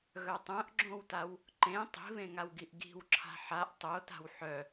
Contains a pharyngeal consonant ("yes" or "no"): yes